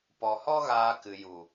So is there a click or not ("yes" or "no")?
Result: no